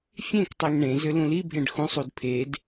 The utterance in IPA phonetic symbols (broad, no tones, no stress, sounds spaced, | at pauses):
fʲ ẽ k tˤ e ŋ ɳ ẽ z ʏ l ũ l i bʱ ẽ ɖ x ũ sˤ u d pʰ e d